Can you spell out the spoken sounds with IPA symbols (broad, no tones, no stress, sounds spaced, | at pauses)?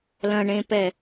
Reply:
l ɐ̃ ɳ ẽ p ɛ